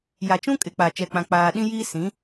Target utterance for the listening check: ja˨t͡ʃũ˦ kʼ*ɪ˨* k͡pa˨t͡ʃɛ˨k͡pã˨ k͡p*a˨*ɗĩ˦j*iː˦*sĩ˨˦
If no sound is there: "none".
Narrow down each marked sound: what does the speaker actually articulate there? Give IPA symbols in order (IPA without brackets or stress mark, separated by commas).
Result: ɪ˨, aː˨, iː˦